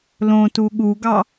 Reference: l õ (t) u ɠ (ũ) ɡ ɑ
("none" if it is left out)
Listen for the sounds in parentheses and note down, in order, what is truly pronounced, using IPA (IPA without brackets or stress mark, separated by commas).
t, u